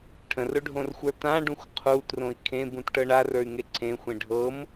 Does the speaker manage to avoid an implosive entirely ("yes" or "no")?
yes